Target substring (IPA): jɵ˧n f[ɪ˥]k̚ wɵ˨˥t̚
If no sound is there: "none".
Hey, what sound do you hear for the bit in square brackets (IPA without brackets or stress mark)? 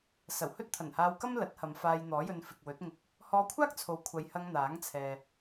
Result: ɪ˨